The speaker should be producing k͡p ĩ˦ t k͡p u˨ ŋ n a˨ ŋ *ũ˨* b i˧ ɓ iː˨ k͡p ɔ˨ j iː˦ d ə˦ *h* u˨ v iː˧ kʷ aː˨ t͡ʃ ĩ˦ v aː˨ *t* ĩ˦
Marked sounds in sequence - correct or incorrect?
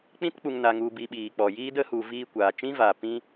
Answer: incorrect, correct, incorrect

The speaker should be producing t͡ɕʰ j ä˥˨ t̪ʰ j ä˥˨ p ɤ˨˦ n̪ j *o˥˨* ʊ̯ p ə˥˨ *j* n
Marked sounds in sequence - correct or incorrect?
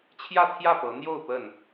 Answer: correct, incorrect

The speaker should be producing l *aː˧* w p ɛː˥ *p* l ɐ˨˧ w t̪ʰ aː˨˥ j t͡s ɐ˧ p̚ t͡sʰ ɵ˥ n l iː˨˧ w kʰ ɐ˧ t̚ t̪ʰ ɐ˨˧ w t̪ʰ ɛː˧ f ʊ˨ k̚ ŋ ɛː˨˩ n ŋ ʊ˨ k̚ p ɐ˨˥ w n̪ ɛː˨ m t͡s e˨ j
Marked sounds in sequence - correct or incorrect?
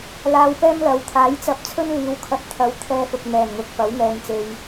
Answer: correct, incorrect

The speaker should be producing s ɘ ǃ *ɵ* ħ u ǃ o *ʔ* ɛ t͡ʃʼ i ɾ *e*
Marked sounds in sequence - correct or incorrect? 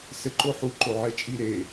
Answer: incorrect, incorrect, correct

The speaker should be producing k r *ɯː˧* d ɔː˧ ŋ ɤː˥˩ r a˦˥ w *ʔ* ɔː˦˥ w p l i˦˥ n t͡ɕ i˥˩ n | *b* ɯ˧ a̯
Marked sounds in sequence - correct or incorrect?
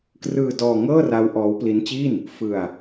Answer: correct, correct, incorrect

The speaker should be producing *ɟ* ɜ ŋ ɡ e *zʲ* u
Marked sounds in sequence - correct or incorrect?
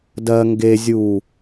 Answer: incorrect, correct

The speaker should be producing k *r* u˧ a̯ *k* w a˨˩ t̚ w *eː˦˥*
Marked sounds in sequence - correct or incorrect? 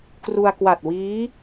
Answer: correct, correct, incorrect

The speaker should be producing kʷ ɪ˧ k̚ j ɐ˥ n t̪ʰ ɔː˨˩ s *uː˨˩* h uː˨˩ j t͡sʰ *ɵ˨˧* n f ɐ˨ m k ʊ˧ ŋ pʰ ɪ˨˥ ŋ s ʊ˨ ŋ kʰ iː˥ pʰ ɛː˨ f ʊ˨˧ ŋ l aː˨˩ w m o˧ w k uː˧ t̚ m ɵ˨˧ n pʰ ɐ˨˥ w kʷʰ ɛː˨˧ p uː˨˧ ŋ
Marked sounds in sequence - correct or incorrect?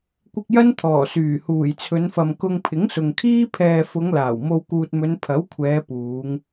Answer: incorrect, correct

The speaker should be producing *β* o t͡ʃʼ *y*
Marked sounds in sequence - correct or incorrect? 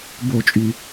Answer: incorrect, correct

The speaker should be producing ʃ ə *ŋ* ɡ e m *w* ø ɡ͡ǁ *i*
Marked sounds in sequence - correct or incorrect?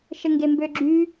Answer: correct, incorrect, incorrect

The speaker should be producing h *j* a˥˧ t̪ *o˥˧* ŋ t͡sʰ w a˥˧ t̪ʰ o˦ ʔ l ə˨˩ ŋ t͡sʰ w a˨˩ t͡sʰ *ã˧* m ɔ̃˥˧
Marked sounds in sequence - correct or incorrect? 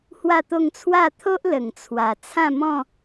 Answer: incorrect, correct, incorrect

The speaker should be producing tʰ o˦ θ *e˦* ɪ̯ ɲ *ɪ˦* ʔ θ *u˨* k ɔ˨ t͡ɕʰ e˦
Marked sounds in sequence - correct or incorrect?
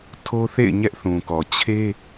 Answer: incorrect, incorrect, incorrect

